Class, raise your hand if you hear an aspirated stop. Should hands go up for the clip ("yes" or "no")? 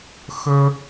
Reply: no